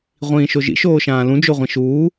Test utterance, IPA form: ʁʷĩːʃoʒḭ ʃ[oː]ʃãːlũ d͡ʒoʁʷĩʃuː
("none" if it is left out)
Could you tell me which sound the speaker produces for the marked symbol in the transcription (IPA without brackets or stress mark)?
oː